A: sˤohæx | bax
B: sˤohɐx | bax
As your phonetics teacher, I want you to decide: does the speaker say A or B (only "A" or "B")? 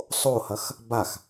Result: B